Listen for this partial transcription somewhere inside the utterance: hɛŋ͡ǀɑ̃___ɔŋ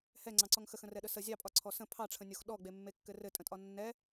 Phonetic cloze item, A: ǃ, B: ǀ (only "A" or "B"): B